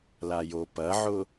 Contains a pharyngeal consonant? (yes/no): yes